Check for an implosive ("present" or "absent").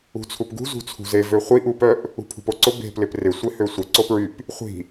absent